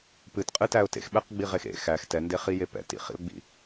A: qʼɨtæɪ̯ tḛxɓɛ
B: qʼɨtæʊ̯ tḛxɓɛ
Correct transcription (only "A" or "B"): B